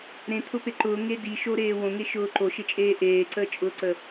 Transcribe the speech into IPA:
ɾ ẽ t̪ʰ ʊ p e ǃ ʊː ŋ e d i ʃ o ɾ eː w õ ŋ e ʃ ʊː ǃ o ʃ e t͡ʃʼ eː ʔ eː ǀ əː t͡ʃʼ ʊː ǀ ə

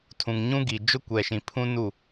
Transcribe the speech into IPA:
tʰ ũ˨ ŋ ɲ ũ˦ ɡ i˨ d͡ʒ ʊ˦ kʷ ɛ˨ ʃ ĩ˨ pʰ ũ˦ n u˦˨

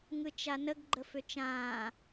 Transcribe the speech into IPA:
ŋ ɯ t͡ʃ a n ə ɡ ɡ͡ǃ ə f ʏ t͡ʃ ãː

